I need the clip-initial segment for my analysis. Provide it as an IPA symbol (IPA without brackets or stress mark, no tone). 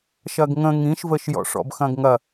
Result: ʃ